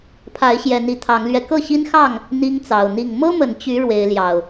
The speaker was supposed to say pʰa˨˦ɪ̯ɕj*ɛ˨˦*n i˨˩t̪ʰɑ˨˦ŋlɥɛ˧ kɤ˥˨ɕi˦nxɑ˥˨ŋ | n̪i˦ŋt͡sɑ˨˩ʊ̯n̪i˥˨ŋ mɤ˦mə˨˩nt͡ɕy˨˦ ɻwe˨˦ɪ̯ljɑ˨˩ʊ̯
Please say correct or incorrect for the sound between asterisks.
correct